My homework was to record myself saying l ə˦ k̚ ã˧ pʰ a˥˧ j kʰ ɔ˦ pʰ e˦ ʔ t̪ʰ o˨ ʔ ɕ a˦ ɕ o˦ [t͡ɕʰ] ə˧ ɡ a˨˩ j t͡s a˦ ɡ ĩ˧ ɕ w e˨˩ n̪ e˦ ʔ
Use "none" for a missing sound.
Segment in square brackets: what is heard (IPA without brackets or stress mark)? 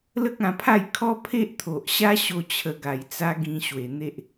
t͡ɕʰ